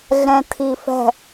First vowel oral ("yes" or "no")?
no